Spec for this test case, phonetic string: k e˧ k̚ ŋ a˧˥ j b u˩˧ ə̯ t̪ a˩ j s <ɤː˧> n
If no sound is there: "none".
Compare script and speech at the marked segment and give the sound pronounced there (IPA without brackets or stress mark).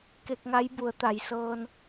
ɤː˧